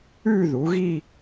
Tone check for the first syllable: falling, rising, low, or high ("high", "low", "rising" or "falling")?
falling